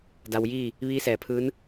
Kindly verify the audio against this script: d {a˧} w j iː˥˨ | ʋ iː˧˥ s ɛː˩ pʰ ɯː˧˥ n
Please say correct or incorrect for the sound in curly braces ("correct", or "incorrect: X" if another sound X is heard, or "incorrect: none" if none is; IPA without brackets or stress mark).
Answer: correct